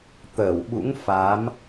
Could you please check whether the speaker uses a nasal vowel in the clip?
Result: no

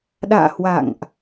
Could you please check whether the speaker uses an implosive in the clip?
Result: yes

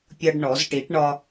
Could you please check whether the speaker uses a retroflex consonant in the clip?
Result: yes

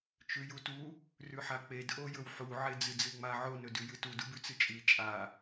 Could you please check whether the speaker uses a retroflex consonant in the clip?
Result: no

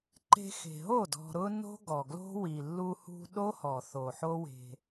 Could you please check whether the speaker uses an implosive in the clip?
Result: yes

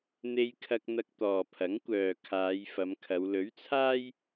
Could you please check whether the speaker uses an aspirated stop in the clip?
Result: yes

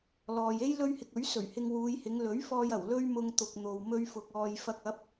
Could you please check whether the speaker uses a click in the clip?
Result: no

